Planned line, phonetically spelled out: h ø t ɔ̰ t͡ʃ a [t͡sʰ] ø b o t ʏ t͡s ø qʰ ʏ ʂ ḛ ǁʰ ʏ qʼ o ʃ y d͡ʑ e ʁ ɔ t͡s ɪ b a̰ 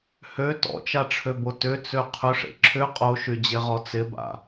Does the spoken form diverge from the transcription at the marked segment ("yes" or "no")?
yes